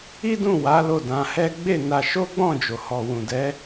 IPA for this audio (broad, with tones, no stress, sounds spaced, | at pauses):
i˦ d ũ˦˨ w a˨˦ l o˦˨ d ã˧ h ɛ˦ ɡ͡b e˦˨ n a˧ ʃ o˦ ɡ͡b ɔ̃˦˨ d͡ʒ o˨ h ɔ˨ w ũ˨ d ɛ˨˦